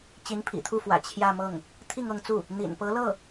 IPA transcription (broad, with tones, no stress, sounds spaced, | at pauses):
t͡ɕ i˧˥ n pʰ ḭ˨˩ t̪ʰ u˥˩ f w ä̰˨˩ t͡ɕʰ j ä˥˧ m ɤ˥˩ ŋ | t̪ʰ i˥˧ ŋ ɤ˥˧ ŋ t͡s u˥˩ | n̪ ḭ˨˩ n p ɤ˧˥ l ɤ˥˩